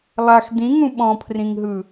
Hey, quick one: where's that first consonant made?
tongue tip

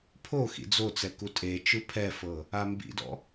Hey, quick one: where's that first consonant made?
lips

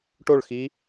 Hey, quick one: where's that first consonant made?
retroflex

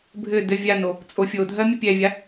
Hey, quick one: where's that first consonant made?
lips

